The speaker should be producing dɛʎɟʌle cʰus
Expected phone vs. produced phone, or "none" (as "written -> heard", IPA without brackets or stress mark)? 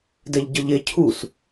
l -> ʎ